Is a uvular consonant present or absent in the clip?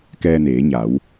absent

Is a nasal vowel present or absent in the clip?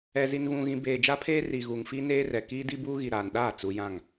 present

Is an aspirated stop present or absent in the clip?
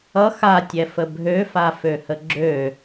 absent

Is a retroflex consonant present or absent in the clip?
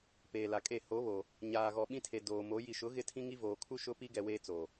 absent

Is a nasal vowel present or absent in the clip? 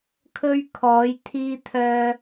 absent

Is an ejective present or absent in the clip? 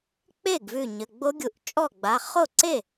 present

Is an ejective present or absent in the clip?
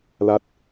absent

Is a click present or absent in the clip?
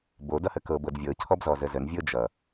absent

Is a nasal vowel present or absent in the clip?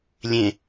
present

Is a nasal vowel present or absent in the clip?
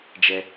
absent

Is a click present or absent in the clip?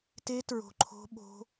present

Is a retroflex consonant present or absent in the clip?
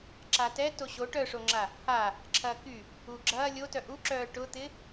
present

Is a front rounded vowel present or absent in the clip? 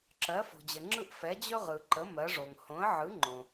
absent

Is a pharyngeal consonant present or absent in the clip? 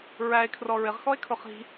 absent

